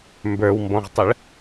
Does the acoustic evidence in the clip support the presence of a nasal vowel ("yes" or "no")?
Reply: yes